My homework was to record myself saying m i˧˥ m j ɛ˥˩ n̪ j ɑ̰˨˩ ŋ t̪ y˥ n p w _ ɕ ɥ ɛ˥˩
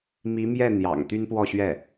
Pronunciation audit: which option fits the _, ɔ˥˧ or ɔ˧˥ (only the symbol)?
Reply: ɔ˥˧